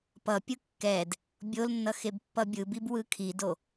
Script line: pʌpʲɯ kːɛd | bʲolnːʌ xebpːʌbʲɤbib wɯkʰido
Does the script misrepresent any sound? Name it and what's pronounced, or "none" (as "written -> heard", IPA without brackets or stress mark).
ɤ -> ɯ